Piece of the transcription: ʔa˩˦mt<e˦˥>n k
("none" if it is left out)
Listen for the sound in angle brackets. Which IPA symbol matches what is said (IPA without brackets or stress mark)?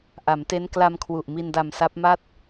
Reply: e˦˥